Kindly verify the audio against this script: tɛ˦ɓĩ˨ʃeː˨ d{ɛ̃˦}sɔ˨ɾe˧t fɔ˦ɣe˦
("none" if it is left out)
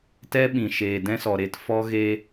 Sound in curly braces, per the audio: ɛ̃˦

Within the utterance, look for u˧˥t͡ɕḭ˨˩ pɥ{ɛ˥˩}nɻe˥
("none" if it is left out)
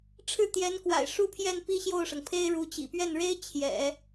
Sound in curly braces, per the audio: ɛ˥˩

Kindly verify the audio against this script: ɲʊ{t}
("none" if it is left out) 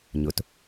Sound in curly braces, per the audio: t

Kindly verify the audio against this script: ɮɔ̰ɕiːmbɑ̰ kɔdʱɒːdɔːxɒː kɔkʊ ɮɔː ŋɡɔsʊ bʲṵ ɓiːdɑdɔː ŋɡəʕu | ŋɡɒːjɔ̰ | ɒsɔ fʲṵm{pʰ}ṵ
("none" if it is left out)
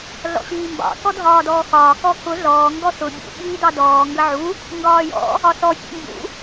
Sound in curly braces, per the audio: b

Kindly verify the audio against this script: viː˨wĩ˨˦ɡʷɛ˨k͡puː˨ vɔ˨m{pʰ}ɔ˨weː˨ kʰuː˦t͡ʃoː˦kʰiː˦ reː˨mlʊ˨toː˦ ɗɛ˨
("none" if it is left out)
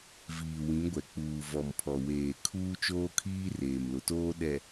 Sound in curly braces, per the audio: pʰ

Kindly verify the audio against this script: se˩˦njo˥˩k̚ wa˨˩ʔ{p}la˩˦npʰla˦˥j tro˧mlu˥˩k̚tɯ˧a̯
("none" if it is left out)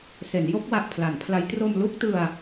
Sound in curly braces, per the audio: pʰ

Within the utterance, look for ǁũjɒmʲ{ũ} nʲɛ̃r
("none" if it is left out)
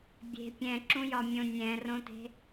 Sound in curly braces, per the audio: õ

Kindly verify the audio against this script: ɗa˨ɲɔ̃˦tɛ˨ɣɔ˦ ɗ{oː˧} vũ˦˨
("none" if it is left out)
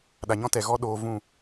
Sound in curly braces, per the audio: oː˧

